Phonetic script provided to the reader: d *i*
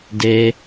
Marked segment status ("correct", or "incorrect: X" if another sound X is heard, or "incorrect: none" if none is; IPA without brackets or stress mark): incorrect: e